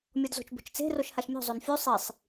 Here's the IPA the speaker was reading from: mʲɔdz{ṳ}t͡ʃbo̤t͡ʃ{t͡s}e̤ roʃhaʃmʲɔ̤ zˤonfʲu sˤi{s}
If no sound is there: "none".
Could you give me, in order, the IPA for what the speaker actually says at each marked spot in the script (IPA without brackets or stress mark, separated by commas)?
o̤, t͡s, sˤ